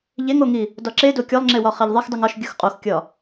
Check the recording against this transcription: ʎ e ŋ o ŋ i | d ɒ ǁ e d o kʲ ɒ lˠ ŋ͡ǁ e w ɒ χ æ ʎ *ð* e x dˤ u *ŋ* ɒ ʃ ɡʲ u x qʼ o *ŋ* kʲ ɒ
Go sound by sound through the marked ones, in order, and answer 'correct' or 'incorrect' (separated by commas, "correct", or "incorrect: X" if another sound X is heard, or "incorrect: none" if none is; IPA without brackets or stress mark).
incorrect: ðˤ, correct, incorrect: x